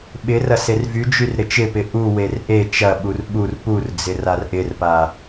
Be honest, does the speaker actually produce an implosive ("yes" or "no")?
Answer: yes